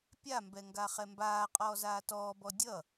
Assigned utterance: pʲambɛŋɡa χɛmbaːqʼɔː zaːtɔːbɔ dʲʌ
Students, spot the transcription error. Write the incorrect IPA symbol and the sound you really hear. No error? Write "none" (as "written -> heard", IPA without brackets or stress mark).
none